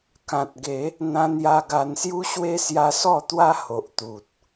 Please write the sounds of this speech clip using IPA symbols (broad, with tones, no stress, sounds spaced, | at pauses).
k ã˨ t̚ ɡ e˨˦ | n̪ ã˧ n j a˧ ɡ a˧ n s j u˦ ɕ w e˦ s j a˧ s ɔ˥˧ t̪ w a˦ h o˨ ʔ t̪ u˨ t̚